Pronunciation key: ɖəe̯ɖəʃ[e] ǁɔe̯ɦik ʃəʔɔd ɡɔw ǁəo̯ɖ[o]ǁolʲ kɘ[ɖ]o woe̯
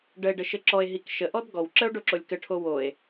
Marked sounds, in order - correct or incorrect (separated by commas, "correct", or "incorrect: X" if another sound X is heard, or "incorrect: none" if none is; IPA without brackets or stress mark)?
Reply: incorrect: ɘ, correct, incorrect: ʈʰ